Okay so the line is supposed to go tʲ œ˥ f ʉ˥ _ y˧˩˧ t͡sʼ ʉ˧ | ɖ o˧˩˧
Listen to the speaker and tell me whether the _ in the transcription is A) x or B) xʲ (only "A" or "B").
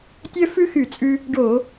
A